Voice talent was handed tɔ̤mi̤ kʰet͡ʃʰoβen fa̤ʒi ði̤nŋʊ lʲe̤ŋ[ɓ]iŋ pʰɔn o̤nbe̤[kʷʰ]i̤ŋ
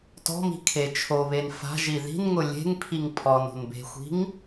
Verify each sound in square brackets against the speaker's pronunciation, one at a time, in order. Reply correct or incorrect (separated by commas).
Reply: incorrect, incorrect